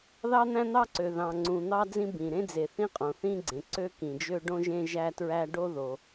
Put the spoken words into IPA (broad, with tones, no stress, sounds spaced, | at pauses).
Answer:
ð ɑ˥ n̪ æ̃˥ n̪ ɑ˥ ǀ ø˩ ð ɑ̃˩ ŋ͡ǀ ũ˩ n̪ ɑ˥ d͡z ĩ˥ b ĩ˩ ɾ ẽ˥ d͡z e˩ θ ĩ˥ qʼ õ˩ θ ĩ˥ ɡ͡ǀ ẽ˩ ǀ ø˥ k ĩ˩ d͡ʒ ø˥ ɖ õ˥ ʒ ẽ˥ ʒ æ˥ t ɹ æ˥ ɖ o˥ ð o˩